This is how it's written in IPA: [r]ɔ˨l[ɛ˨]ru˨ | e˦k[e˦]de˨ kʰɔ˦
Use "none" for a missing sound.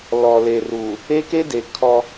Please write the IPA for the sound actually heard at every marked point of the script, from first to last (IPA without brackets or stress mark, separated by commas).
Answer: l, e˨, e˦